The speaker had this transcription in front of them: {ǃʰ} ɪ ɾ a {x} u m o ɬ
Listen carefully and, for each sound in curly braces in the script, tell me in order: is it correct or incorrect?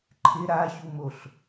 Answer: correct, incorrect: ç

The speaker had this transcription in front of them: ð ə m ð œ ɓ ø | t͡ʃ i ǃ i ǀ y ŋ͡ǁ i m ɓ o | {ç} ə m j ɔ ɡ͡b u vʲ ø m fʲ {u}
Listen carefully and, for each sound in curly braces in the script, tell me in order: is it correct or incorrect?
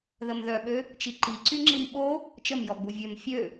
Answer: incorrect: t͡ʃ, incorrect: ø

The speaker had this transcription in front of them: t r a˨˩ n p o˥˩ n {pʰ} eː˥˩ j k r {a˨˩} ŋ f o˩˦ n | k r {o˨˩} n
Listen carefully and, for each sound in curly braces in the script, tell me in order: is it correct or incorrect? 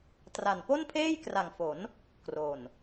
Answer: correct, correct, correct

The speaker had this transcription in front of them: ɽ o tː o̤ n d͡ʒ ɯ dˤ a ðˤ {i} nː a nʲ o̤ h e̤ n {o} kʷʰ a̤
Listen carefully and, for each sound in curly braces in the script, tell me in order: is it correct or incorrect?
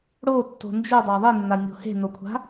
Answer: correct, correct

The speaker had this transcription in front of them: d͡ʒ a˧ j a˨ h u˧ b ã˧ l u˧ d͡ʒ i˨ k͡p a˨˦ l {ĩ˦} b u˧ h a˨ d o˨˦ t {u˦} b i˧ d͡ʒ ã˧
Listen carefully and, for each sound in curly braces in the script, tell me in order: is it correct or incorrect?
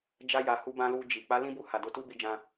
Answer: correct, correct

